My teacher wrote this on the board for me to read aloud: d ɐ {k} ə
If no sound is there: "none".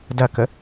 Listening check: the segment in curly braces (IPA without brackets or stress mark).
k